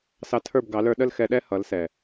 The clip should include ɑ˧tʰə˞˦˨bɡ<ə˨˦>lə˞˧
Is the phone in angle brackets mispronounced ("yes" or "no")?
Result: yes